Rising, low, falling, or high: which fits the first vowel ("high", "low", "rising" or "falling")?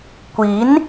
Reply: rising